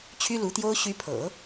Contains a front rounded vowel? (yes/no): yes